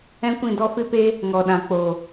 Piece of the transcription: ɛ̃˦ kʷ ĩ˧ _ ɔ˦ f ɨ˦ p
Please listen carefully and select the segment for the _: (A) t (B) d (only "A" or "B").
B